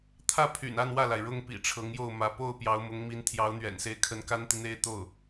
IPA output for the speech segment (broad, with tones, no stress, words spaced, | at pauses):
t̪ʰä˥˩pʰy̰˨˩n a˥˧nwä˥˩la˩ɪ̯ ɻʊ˥ŋpḭ˨˩ ʈ͡ʂʰɤ˧˥ŋjo˥˩ʊ̯mä˧˥ po˥˩ʊ̯ pjɑ˧˥ʊ̯mʊ˧˥ŋmi˧˥n t̪ʰjɑ˧˥ʊ̯n̪ɥɛ̰˨˩nse˧˥ɪ̯kʰə˧˥n ka˥nt̪i˨n̪e˥˧ɪ̯ t̪o˥˩ʊ̯